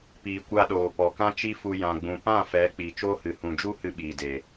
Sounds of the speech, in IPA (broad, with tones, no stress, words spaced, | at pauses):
piː˨kʷa˧ɗoː˨ pɔ˨kã˦t͡ʃi˦fu˧ jã˨ɡ͡bũ˨pã˦˨ fɛ˨˦ k͡piː˨t͡ʃoː˦hɨ˨ hũ˨d͡ʒu˦ hɨ˧ɓiː˨de˨